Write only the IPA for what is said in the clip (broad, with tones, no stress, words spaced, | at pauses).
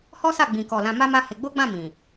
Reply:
hɔ˦sa˦˨ ɡ͡bĩ˨kɔ˨ lã˧ma˦ma˦he˧ ɡ͡bo˦ɡ͡bã˦˨ mĩ˨